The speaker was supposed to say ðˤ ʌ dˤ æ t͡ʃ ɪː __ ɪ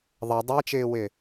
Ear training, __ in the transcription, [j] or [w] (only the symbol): w